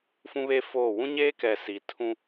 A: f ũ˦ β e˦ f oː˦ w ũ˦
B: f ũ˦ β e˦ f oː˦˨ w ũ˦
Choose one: B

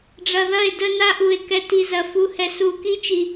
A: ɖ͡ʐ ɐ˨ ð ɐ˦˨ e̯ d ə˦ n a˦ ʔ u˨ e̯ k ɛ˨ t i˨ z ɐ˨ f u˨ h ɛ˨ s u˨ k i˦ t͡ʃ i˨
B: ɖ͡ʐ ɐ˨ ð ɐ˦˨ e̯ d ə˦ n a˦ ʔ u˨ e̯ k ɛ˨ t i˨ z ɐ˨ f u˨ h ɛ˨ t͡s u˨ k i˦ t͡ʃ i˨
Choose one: A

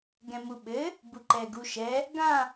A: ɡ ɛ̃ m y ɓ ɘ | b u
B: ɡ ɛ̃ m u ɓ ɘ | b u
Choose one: B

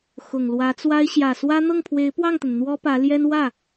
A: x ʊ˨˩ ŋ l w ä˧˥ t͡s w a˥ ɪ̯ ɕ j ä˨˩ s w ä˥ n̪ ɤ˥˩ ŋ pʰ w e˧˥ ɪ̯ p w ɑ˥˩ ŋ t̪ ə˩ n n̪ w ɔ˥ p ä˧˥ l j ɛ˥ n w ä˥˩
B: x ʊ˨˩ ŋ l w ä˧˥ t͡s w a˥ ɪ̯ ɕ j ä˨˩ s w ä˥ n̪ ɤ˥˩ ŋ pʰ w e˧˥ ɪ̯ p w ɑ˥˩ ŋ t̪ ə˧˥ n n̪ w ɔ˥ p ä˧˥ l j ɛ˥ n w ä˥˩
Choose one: A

